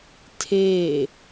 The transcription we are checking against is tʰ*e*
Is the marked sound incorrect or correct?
incorrect